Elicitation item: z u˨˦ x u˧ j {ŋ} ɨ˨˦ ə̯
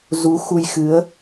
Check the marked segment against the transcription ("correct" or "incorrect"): incorrect